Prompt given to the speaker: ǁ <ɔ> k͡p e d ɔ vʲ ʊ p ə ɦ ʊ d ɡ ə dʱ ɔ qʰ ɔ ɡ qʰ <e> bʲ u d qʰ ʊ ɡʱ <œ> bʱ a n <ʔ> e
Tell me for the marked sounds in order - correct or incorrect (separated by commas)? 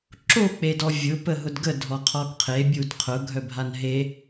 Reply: incorrect, correct, correct, incorrect